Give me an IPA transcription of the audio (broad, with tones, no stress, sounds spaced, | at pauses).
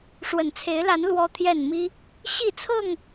ʂ w ə˨˩ n t͡sʰ e˨˦ ɪ̯ l a˨˦ n l w ɔ˦ t̪ʰ j ɛ˥˨ n m i˦ | ɕ i˥˨ t͡sʰ ɤ˥˨ ŋ